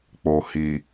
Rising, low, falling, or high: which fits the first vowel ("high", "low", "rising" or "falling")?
low